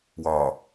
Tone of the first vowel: low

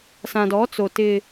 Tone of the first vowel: low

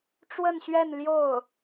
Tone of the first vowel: falling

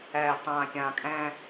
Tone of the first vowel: low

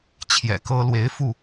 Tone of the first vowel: low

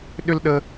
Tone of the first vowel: high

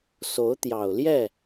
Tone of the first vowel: rising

